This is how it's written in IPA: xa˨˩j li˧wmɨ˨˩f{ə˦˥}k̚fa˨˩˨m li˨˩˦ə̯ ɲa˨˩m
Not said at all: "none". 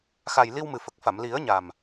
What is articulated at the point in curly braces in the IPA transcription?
ə˨˩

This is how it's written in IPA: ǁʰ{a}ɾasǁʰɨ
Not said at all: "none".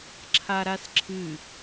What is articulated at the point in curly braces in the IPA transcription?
a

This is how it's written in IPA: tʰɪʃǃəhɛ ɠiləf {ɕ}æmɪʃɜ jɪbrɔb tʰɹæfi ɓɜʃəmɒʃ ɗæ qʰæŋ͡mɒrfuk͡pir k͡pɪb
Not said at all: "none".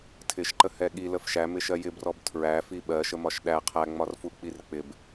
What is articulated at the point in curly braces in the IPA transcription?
ʃ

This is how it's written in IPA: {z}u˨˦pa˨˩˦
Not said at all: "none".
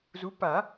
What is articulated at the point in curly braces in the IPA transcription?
z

